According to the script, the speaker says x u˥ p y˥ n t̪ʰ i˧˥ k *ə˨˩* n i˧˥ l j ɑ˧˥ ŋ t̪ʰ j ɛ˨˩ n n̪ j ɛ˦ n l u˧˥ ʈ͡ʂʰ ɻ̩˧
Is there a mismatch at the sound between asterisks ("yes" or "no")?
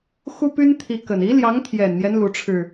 no